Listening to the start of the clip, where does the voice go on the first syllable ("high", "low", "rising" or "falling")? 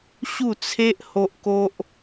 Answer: falling